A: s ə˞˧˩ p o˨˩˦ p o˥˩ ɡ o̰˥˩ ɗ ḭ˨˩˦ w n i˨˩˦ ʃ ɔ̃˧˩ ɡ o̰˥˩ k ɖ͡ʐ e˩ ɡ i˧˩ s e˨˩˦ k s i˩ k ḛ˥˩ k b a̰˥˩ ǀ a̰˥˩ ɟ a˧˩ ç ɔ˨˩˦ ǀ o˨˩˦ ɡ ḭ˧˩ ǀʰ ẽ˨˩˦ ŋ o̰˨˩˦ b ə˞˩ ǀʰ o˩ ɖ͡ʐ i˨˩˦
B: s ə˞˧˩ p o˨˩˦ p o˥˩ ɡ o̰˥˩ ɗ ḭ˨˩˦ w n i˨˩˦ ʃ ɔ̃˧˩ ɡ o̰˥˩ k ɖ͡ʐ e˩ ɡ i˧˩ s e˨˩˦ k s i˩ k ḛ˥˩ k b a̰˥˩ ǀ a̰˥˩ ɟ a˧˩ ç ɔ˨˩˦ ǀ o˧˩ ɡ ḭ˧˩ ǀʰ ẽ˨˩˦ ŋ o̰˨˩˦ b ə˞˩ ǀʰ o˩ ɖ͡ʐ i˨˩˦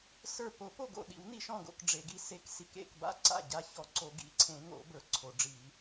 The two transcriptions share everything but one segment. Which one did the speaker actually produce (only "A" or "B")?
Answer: A